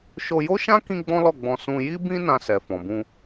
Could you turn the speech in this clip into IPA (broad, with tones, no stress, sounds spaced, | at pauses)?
ʃ o˧ j o˦ ʃ ã˦ k ĩ˦ ɡ͡b ɔ̃˦ l ɔ˦˨ ɡ͡b ɔ̃˧ s ũ˧ j i˦ b ĩ˦ n ã˧ s ɛ˨ f ɔ̃˨ b ũ˧